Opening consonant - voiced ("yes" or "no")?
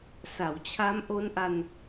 no